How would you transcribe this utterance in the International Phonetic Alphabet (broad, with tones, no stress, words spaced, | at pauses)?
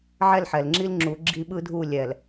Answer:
ʕɛ˦˨lħɛ˨lŋ͡ǁi˦l ŋ͡ǁu˨˦ɡ͡ǁi˦ ɓɯ˦dʱu˦˨ lʲɛ˨l